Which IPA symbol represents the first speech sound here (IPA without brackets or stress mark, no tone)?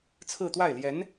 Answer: t͡sʰ